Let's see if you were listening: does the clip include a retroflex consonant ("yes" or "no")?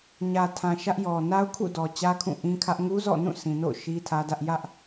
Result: no